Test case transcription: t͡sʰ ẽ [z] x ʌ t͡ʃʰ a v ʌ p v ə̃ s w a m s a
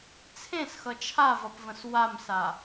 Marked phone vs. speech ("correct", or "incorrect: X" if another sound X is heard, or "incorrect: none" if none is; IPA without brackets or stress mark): incorrect: s